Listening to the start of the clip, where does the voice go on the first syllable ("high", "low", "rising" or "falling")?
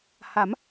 rising